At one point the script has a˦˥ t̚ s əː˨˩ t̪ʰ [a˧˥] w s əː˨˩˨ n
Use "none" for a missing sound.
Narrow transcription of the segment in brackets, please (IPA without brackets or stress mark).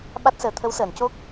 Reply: ə˧˥